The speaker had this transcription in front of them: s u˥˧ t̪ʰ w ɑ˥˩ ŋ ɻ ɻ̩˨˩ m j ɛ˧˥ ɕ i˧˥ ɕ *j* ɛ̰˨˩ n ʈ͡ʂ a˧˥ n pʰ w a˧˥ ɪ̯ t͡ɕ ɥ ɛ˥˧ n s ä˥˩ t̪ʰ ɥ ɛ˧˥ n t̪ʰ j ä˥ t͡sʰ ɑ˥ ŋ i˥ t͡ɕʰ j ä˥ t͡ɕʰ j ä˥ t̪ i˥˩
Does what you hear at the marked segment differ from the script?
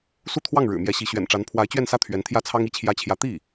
yes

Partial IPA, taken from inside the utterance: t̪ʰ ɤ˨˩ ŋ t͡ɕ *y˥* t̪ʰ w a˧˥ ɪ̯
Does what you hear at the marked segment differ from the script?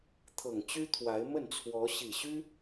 no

